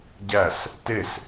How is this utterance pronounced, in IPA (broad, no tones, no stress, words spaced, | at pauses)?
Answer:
ɟæs | tes